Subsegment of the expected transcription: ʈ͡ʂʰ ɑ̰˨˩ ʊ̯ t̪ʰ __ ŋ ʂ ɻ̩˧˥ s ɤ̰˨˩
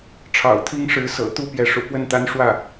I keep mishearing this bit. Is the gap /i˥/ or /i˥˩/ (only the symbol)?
i˥